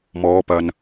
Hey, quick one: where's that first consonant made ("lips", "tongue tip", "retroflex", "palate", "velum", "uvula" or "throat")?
lips